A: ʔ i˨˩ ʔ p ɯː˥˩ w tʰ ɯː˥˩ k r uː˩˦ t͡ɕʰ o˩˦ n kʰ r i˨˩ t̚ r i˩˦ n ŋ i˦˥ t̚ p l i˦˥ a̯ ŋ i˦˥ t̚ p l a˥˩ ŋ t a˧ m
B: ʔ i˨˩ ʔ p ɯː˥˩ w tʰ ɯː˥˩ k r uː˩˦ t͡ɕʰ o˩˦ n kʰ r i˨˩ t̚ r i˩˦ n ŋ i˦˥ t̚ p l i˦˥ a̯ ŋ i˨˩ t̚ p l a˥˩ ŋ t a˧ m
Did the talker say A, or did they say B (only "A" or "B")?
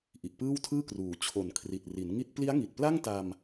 B